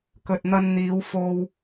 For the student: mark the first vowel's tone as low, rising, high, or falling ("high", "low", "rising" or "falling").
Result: low